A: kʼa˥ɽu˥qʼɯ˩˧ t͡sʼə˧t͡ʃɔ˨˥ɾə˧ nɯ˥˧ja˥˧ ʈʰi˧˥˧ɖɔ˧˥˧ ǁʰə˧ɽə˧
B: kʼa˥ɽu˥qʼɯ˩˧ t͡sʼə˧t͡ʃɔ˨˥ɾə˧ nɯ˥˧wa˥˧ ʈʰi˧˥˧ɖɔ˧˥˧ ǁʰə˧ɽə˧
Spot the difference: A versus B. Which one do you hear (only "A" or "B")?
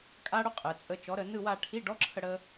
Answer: B